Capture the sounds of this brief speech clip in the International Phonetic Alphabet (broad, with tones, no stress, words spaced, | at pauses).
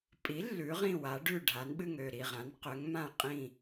pʼi˩˥ lːʉ˩˥ʁĩ˥˩wa˩˥ ɖʉ˥˩ɖʱa˩˥n ɓɨ˥˩ŋø˥˩ɾi˥˩ʁã˩˥n qø˩˥ŋmã˥˩ qʼĩ˥˩